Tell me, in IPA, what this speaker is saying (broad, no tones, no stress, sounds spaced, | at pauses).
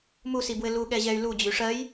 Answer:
m u s i b w ɘ l u ɠ ɛ ʑ ɛ y̯ l u d͡ʑ y ʂ ɜ j